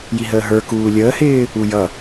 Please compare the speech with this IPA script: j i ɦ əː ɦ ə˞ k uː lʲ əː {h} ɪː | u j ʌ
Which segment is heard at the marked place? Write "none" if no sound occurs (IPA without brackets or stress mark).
h